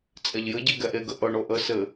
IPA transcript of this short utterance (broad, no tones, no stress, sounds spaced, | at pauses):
t͡sʼ ɛ ʎ j ɘ ɟ e ɡ ɛ ʔ e ɡ ə ʔ ɤ ɳ o ʔ ə s ɘ